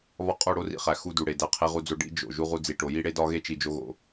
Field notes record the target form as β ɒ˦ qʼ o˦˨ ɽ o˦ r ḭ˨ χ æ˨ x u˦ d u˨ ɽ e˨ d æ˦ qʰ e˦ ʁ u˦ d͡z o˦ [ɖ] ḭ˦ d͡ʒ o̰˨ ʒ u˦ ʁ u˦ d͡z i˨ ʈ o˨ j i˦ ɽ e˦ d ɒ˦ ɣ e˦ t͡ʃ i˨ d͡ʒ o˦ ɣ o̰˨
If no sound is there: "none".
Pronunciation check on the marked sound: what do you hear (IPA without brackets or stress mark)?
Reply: ɖ